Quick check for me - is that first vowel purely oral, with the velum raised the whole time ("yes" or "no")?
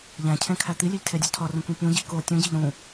no